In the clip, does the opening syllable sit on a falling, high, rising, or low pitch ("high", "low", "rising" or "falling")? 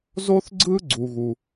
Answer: high